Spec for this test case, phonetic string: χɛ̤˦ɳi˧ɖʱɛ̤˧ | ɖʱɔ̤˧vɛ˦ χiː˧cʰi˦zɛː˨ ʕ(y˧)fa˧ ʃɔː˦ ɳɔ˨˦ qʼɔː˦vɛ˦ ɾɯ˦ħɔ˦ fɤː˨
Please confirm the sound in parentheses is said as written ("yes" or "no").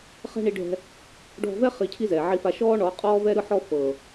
no